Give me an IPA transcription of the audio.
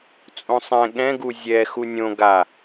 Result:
t͡sʼ õ sˤ ɛ̃ ɠ ɛ̃ ɡ u zʲ ɛ x u nʲ õ ɡ a

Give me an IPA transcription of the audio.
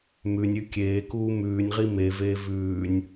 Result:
m ʉ nʲ ʉ kʲ eː k uː m ʉː nʲ ʁ i m e v eː v ʉː nʲ

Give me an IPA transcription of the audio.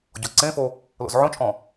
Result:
ɟ ɔ ǀ ẽ f o | l o̰ z ʕ õ t͡ʃʼ ɔ̃

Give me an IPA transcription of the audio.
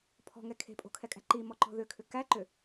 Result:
pʰ ɔ̤ ŋ ɛ kʰ e̤ pʼ o̤ kʰ ɛ kʼ æ̤ ǃ i m ɔ ǃ ɔ̤ ð ʏ kʰ ʏ k æ ǃ ʏ

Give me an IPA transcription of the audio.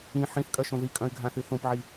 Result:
ĩ ħ ĩ θ kʼ ɐ ʃ õ ð i kʼ ɐ̃ y̯ ɡʱ ã θ ɨ θ õ p ʕ i

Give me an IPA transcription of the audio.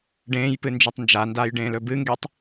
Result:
ɖ ẽː j p ɨ n d͡ʒ ʉ tˤ n d͡ʒ a n d aː j ɖ ẽː l ɵ b ɨ ŋ ɡ e tˤ

